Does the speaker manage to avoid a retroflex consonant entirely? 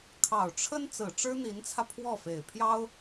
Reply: no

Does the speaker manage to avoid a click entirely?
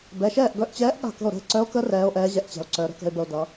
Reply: no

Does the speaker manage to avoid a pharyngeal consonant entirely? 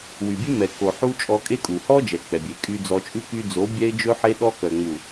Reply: no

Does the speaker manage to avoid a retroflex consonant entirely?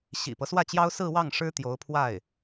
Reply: no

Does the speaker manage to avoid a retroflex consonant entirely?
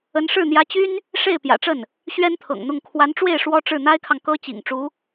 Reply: no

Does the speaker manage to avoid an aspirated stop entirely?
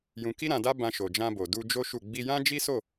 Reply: yes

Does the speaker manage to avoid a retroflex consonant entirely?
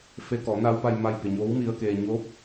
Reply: yes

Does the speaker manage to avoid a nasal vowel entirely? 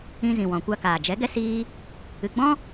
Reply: no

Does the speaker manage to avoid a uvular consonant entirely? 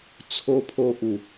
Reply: yes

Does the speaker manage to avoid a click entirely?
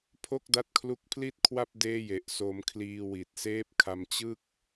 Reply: yes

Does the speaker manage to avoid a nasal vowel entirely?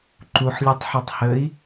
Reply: yes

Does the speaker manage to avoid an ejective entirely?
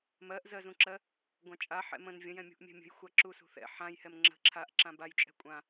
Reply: no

